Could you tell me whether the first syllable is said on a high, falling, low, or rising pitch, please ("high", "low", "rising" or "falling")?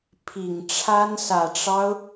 low